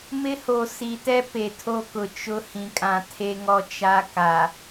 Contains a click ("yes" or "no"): no